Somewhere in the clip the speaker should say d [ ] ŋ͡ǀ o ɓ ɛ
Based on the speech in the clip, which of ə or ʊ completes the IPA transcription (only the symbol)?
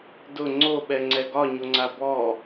ʊ